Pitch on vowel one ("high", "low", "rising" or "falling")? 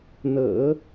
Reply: low